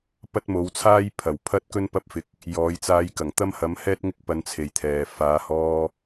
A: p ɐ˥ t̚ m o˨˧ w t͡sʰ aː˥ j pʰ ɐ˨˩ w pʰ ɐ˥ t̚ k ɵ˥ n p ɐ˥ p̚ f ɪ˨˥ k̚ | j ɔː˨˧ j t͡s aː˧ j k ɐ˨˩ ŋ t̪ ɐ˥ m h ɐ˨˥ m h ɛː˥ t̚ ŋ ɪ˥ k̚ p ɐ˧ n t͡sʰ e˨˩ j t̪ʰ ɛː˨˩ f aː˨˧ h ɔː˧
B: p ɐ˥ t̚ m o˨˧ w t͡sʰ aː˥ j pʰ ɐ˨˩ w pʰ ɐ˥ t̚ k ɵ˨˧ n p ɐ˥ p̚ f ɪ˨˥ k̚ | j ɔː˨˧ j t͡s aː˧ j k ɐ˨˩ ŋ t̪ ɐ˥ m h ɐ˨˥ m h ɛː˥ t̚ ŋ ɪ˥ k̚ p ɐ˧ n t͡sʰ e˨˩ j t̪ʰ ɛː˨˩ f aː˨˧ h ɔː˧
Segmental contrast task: A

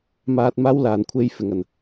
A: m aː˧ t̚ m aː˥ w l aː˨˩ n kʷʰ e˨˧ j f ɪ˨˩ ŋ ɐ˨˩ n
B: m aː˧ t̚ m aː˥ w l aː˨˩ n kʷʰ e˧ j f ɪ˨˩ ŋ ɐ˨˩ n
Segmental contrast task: B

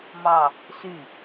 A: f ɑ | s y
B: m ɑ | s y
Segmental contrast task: B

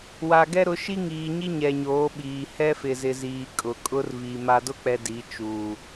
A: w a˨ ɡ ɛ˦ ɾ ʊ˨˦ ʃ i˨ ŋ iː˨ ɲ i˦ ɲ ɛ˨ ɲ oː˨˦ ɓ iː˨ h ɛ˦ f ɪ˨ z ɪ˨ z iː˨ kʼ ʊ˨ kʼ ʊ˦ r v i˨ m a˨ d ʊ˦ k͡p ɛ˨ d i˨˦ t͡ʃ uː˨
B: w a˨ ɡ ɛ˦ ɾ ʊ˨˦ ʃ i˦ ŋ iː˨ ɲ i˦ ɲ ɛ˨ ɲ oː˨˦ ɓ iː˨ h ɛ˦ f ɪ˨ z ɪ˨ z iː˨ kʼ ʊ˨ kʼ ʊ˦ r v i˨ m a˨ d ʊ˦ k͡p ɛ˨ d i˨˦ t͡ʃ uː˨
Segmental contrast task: B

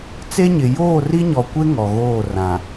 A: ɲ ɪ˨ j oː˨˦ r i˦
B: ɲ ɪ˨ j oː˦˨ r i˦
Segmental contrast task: B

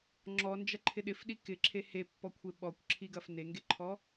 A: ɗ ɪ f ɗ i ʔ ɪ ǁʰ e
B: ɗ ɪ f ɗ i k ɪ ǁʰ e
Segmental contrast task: B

